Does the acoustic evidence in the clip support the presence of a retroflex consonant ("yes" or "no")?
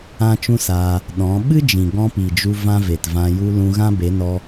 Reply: no